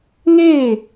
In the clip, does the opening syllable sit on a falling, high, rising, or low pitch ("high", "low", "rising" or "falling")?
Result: falling